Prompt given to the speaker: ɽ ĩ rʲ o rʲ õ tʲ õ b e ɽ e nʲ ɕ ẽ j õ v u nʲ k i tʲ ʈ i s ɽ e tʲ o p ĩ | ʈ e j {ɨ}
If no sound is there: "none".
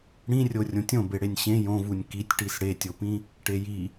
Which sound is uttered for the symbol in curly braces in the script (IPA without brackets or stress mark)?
i